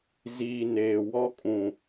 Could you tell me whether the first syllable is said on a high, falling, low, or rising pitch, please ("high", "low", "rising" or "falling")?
low